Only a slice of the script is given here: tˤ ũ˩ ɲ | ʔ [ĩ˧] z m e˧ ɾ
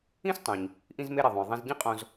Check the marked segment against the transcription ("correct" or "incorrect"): correct